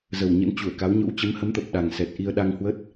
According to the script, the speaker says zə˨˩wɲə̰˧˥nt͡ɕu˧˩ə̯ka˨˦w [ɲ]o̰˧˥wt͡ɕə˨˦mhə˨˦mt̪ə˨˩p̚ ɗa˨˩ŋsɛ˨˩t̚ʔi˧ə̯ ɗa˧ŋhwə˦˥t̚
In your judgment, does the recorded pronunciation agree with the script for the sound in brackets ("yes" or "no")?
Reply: yes